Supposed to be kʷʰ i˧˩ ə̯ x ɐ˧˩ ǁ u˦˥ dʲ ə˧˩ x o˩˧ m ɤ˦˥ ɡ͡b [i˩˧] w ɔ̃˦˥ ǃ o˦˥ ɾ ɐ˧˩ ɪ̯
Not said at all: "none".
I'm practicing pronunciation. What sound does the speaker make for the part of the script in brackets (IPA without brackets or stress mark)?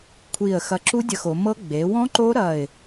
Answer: e˩˧